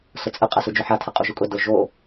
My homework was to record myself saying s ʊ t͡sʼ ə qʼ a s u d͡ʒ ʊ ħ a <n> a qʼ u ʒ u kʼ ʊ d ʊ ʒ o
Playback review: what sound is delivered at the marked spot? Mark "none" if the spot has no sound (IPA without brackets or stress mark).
tʰ